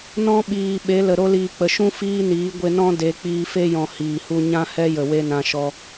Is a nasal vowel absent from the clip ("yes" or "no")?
no